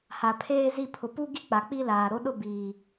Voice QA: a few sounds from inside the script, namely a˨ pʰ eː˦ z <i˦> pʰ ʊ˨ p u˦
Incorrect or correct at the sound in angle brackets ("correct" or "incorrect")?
incorrect